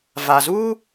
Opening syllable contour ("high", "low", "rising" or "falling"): low